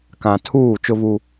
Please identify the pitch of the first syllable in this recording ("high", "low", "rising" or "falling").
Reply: low